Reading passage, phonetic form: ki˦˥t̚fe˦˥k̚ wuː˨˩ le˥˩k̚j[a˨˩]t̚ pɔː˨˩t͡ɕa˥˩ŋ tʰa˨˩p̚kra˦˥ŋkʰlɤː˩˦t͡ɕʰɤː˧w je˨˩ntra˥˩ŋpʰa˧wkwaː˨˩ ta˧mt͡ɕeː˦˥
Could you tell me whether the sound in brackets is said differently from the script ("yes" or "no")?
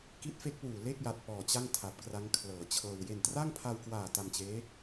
no